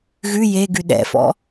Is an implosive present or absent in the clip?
present